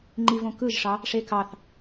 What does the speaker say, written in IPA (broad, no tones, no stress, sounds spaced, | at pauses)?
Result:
ŋ͡ǃ i v õ k ɯ ʒ ʂ ɑ | ʂ e k ɑ θ